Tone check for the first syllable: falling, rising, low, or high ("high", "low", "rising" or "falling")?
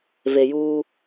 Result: low